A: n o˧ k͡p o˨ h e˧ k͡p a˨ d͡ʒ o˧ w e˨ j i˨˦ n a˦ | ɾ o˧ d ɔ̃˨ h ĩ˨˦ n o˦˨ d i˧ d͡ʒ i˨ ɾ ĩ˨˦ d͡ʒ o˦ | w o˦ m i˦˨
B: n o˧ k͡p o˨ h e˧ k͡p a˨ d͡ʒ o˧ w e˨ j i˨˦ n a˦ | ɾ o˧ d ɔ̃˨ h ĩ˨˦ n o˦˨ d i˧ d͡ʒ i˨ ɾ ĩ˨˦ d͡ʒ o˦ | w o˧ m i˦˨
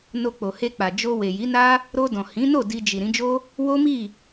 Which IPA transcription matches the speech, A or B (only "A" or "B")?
A